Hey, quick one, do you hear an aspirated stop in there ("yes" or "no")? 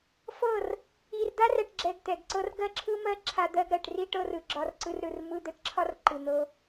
yes